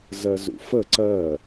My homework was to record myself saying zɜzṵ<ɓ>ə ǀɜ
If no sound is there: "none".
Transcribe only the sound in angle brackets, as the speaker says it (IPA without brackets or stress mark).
f